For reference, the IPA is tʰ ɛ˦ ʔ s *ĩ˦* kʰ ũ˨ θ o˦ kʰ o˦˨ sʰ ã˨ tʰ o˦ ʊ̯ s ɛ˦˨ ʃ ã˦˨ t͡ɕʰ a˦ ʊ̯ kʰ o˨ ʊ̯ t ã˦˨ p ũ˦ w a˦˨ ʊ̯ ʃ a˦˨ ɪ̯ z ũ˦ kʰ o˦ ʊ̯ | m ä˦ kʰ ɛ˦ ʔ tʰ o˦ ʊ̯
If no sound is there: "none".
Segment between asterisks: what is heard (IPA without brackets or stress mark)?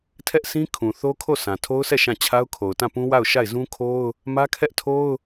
ĩ˦